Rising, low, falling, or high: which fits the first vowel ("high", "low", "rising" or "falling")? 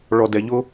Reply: low